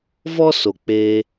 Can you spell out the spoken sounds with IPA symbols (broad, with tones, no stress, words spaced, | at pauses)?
vɔ˦so˨ k͡pe˧